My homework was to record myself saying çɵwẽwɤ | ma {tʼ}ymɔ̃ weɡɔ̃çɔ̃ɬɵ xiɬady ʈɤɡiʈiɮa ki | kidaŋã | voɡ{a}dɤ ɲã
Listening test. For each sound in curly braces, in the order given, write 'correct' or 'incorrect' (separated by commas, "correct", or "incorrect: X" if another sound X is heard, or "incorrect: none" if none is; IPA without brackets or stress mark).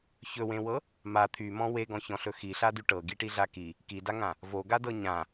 incorrect: t̪ʰ, correct